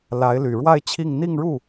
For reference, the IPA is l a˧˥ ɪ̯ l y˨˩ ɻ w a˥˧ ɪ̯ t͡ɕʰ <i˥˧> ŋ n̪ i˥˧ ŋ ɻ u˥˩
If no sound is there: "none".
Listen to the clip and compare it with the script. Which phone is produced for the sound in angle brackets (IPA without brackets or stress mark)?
i˥˧